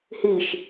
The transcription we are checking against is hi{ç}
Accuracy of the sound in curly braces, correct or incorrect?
incorrect